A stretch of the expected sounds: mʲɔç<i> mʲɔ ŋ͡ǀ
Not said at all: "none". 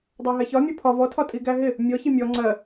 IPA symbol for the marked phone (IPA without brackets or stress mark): i